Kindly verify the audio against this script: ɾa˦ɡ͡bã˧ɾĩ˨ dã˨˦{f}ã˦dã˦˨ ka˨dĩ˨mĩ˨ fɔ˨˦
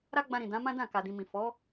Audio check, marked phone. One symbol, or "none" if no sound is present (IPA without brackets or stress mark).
m